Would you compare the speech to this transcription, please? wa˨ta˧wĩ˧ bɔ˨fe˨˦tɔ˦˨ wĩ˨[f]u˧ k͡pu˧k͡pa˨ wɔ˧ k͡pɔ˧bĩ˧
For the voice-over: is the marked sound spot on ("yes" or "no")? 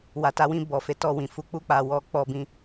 yes